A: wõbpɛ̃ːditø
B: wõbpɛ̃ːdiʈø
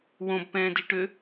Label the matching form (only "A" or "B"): B